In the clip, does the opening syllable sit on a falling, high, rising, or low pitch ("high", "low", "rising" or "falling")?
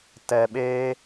low